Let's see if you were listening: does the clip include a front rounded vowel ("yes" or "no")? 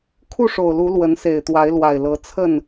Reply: no